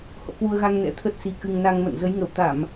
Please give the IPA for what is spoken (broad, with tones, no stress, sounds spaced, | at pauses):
h o̰˧˨ k w u˧ ə̯ ɣ a˧ ŋ n ɛ̰˧˥ t̪ʰ ə˦˥ t̚ s i˧ k ɨ˧ ŋ n a˧ ŋ m ə̰˧˨ n z ə˨˦ j ŋ ə˧˩ w t̪ a˧˩˨ m